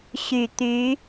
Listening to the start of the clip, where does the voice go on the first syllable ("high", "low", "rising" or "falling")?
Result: low